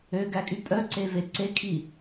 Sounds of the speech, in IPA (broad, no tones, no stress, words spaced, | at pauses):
øɡækʼy pʼœǀeve ǀekʰi